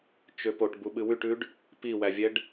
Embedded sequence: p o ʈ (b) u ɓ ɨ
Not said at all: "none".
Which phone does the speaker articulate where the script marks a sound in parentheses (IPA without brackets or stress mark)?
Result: b